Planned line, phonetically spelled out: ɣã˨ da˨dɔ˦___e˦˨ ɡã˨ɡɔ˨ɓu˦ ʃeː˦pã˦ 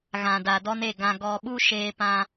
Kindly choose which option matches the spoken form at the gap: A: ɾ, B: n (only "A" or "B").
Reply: B